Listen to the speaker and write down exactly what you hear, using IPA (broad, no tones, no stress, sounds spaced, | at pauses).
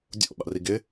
dʲ o̰ ɓ a̰ r i ɡ ɪ